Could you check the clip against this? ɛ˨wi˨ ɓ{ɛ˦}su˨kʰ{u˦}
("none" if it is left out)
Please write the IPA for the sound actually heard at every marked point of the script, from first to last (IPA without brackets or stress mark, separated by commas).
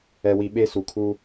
e˦, u˦